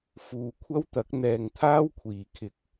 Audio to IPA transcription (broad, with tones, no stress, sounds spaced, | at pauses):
f uː˨ kʷʰ ɐ˥ w t̪ ɐ˨˥ k̚ n̪ ɛː˨ ŋ t̪ʰ aː˥ w kʷʰ iː˨˩ kʰ ɪ˨˥ k̚